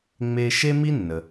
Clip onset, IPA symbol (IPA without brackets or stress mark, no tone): ŋ͡m